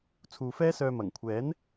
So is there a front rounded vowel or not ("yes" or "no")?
yes